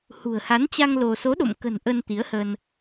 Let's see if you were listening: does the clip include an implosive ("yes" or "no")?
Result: yes